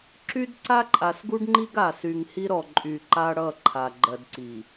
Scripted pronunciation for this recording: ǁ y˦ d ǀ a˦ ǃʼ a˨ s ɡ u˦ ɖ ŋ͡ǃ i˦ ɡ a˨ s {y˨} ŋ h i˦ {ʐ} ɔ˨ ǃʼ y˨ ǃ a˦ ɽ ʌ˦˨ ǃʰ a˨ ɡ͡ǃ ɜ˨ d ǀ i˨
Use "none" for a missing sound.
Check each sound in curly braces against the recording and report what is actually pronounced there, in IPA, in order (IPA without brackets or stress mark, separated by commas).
y˨, ɾ